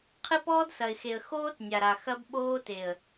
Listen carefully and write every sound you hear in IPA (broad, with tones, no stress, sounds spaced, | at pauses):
qʰ ɨ˦ p ɔː˦ d s ɐ˨ ɪ̯ x e˨ ə̯ x oː˦ t nʲ a˨ ɾ a˨ x ɐ˦ b ɓ oː˦ t e˨ ə̯